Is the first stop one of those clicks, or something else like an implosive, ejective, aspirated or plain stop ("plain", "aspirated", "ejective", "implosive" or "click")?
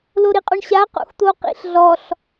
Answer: ejective